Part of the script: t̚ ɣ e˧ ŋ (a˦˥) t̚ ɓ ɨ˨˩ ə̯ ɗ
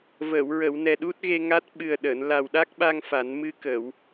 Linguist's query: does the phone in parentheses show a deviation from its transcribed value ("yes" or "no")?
no